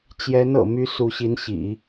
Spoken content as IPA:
t͡ɕ j ɛ˧˥ n ɤ̰˨˩ m y˧˥ s u˧˥ ɕ i˧˥ n ɕ ḭ˨˩˦

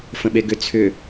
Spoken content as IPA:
f ə̃ ɓ e ɡ ʏ t͡sʰ ʏ

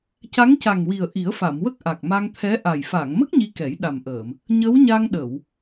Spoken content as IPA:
c a˧˥ ŋ c a˨˩ ŋ w i˨˩ ə̯ ʔ i˨˩˦ ə̯ f a˨˩˨ m w ə˦˥ k̚ ʔ a˨˩ k̚ m a˧ ŋ t̪ʰ ɛ˧˥ ʔ a˨˩ j f a˨˩˨ ŋ m ə˦˥ k̚ ɲ i˧ k ɛ˨˩˦ j ɗ a˨˩ m ʔ əː˨˩˨ m | ɲ ə˧˥ w ɲ a˧ ŋ ɗ ə˨˩˨ w

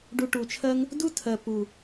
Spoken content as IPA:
ɖ u˧ ʈ u˨ t͡ʃʰ ɜ˦ ŋ | d u˦ tʰ ɜ˨ p u˨

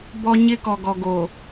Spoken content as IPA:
b ɔ˦ ɲ ɪ˦ k ɔ˨ ɡ ɔ˨ ɡ oː˨

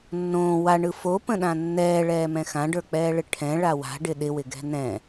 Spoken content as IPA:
nː õː w a ɳ ɯ f o p ə̃ ɗ ã nː ɛː ɭ ɛː m ɛ̃ x ã ɖ ə˞ k͡p ɛː ɭ ɪ ʈʰ ɛ̃ ɭ a w a̤ ɖ ɪ ɗ ɪ w ɪ ɡ ɛ̤ n ɛ̃

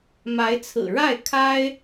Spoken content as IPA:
m a˧˥ ɪ̯ t͡sʰ ɹ̩˨˩ ɻ a˥˩ ɪ̯ kʰ a˥ ɪ̯

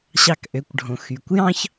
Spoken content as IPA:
ɕ ɑ˧ k ʔ ø˩˧ kʷ ɖʱ õ˩ x y˩ kʷ j ɑ̃˥ ç

